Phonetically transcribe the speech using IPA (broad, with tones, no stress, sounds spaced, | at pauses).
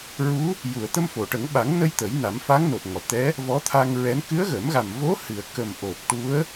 ɹ u˧˥ | j u˨˩˨ ə̯ t̪ ə˧ m f o˨˩˨ ʈ ə˨˩˦ ŋ ɓ a˨˩˦ ŋ n ə˧ j t̪ ə˨˩˦ j n a˨˩˦ m f a˧˥ ŋ n o˨˩ t̚ ŋ ɔ˨˩˨ t̪ ɛ˧˥ | v ɔ˧˥ t̪ʰ a˧ ŋ ɹ ɛ˧˥ n k ɨ˧˥ ə̯ ɣ ə˨˩˦ m ɣ a˨˩ m v o˧˥ h ɨ˨˩˨ ə̯ k ə˨˩ m ʔ o˨˩ p̚ ʈ u˧˥ ə̯